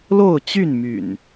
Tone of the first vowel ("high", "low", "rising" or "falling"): falling